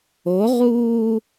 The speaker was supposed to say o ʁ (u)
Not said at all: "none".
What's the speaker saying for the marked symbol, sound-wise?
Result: uː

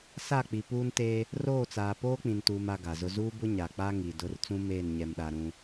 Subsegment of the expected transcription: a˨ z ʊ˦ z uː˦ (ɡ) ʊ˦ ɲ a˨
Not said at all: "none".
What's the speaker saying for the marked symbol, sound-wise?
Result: b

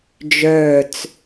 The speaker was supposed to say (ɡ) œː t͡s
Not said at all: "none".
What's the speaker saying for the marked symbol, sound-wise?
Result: d͡ʒ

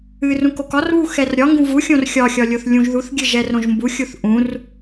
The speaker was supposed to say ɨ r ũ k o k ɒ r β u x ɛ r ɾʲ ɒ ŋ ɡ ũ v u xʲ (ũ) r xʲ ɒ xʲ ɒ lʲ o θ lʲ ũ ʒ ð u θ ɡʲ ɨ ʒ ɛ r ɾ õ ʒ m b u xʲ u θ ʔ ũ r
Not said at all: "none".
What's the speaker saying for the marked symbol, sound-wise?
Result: õ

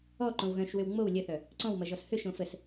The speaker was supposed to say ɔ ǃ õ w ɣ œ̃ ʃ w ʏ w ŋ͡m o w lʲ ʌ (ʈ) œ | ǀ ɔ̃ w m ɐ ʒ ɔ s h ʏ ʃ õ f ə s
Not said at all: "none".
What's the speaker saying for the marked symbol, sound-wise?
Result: θ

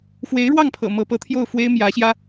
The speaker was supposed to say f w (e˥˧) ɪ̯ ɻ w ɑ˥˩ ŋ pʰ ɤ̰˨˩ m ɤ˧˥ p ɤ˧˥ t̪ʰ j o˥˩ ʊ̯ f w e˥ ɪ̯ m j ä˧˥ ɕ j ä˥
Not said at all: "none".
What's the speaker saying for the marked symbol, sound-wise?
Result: e˧˥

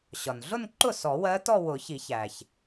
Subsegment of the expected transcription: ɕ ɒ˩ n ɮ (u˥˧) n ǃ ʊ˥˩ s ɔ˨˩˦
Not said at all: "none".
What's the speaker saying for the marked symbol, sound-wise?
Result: ʊ˥˧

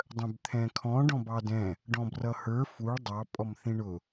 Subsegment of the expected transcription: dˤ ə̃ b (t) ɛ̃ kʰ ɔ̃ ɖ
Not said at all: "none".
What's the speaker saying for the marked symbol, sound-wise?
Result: t̪ʰ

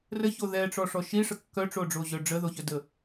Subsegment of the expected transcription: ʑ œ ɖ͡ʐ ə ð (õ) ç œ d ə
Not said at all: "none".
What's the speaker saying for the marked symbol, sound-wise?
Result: o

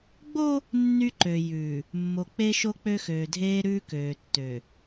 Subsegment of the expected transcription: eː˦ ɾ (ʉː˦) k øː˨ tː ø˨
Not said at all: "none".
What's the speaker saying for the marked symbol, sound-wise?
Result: ʉː˦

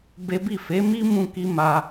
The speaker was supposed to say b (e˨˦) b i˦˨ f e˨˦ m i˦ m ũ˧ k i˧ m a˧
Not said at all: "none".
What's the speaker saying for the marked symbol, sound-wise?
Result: e˦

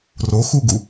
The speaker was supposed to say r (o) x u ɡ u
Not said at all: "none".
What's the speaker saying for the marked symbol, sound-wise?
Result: o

